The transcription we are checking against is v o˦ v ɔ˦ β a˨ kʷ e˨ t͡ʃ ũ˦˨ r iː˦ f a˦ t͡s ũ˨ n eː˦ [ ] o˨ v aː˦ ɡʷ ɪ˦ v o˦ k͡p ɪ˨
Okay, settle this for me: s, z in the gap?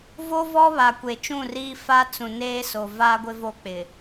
s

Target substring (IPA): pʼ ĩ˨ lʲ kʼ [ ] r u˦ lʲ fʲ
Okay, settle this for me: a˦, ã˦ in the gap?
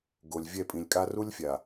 a˦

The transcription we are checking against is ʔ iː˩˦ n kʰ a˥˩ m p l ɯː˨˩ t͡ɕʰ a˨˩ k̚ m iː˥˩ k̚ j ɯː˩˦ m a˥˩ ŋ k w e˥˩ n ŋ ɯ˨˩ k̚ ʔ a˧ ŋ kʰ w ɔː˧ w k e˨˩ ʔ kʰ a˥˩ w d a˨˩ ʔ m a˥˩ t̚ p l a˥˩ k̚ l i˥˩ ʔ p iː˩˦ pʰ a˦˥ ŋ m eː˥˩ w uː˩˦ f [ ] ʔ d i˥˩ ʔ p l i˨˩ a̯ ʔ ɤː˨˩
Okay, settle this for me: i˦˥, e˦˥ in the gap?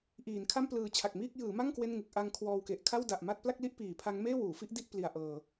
i˦˥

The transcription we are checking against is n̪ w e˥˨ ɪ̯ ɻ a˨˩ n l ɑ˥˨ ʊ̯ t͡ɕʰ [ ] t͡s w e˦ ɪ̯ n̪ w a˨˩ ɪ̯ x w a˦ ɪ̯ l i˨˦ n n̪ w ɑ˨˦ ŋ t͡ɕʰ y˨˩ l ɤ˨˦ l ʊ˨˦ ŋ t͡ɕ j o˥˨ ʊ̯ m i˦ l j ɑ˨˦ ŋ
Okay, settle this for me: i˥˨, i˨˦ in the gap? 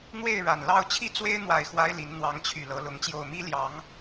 i˥˨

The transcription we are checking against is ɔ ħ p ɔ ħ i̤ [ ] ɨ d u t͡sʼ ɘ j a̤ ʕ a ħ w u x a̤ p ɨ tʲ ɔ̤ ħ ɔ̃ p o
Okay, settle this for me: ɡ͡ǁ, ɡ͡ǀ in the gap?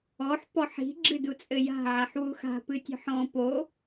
ɡ͡ǁ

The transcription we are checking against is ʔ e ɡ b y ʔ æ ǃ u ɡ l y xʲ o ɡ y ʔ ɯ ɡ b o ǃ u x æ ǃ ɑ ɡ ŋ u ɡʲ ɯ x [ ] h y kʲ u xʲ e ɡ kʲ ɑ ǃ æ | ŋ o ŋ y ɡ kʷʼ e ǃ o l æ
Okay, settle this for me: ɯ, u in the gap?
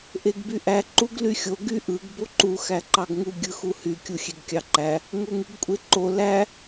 u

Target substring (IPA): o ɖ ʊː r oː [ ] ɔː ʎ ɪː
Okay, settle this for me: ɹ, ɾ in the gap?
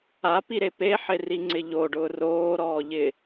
ɾ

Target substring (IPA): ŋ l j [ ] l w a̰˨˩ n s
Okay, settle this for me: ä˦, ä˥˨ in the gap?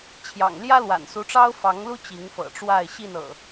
ä˦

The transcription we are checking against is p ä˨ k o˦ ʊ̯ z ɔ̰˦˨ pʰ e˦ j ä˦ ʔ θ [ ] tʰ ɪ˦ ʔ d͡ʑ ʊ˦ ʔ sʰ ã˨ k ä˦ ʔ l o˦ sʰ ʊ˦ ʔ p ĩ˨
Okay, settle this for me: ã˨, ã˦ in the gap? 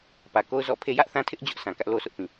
ã˦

